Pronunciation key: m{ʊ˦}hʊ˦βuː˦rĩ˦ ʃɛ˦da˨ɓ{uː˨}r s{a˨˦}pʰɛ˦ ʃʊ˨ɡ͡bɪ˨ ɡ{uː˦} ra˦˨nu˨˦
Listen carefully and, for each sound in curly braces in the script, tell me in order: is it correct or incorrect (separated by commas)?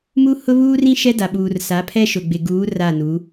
incorrect, correct, correct, incorrect